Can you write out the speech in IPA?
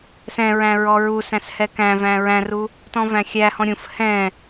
sɛ̃ɹæ̃ ɹɔɹusæ̃s hɛkæ̃væ̃ ɹæ̃ru | tɔ̃væ̃xʲæhɔ̃ ɾʲũf hɛ̃

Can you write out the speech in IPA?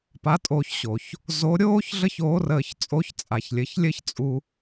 pa˧˥tʼoː˧ç ɕo˩ç | zo˧˥ ɾʲoː˥ç ɮə˥çoː˧˥rəː˧çt͡sʼo˧˥ç t͡sʼa˩çlʲɘ˩˧çlʲɘ˥çt͡sʼu˧

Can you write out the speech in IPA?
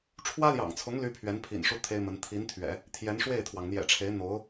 ʈ͡ʂʰwä˥ljɑ̰˨˩ŋt͡sʰʊ˧˥ŋ ly˥pʰɥɛ˧˥npʰḭ˨˩nʂu˥˩ t̪ʰe˥ɪ̯mə˧˥n t̪ʰi˧˥nt̪ʰɥɛ̰˨˩˦ | t̪ʰjɛ˧˥nʂwe˥˩ɪ̯t̪ʰwɑ˩ŋ n̪jɛ̰˨˩ʈ͡ʂʰe˧˥ɪ̯ n̪o˧˥ʊ̯

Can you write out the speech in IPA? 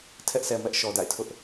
tʰɛ˦ʔsʰɛ˨mɛ˦ʔ ʃɔ˨da̰˦˨ɪ̯tʰʊ˦ʔ

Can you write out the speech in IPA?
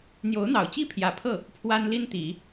n̪jo˧˥ʊ̯n̪ɑ˨˩ʊ̯t͡ɕi˥ pʰjä˨˩pʰɤ˥˩ | pʰwa˥nli˥nt̪i˨˩˦

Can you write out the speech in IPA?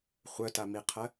χʷœtamiqʰɜ

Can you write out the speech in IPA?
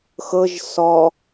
xɤʒ sɔ

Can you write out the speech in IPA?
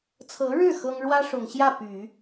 t͡sʰɤ˧˥ɻɻ̩˥˩ xɤ˥ŋ ɻwä˥ʂʊ˨˩ŋɕjä˥˩ py˨˩˦

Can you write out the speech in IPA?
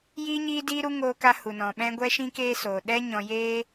jiː˧ɲiː˧diː˧ɾu˧ ŋoː˧ka˧ hu˨nɔ̃˨ɓɛ̃˦ ɡʷɛ˦ʃĩ˦keː˦soː˨ ɗɛ˦ɲɔ̃˧jeː˦

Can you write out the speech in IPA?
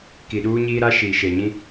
ki˨ɗuː˦ɲiː˦ɾa˦ ʃiː˨ʃe˨ɲĩ˦

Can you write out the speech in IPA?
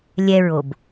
lʲɛɹob

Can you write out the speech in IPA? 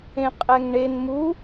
ẽqʼɛŋɳen mu

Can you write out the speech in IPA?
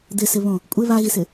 d̪ɪsɪβõ | kʷʼɪ βaɣisɪ

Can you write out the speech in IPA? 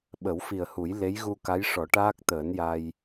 ɓə˨˩˦wfi˨˩ə̯hu˨˩˦j le˧˥jɣu˧ka˧˥jʂɔ˨˩˦ ʈaː˦˥k̚t̪əː˨˩˦n ja˧j

